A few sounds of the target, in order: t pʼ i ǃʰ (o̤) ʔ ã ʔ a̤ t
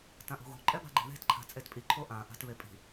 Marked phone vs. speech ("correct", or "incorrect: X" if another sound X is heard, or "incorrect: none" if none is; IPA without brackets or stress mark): incorrect: o